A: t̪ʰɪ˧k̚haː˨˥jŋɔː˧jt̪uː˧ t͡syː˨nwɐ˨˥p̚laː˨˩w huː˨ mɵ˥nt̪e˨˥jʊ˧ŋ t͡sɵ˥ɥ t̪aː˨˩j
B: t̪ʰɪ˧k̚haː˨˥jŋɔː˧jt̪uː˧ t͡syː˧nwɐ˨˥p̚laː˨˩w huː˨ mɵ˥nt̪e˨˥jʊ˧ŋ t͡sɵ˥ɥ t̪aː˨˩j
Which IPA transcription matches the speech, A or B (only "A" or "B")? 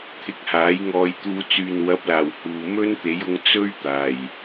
A